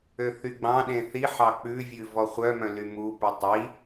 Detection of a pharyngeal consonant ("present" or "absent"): present